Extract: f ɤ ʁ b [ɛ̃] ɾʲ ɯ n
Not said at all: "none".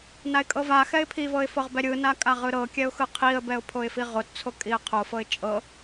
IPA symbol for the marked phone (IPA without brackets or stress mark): ɛ